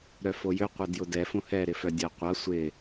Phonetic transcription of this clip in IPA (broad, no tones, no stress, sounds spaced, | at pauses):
ɾ œ f o j ʏ qʷ ɛ d j ʊ d ɛ f õ h ɛ ɾ ɪ f œ dʲ ɐ qʷ ɐ sʷ ɪ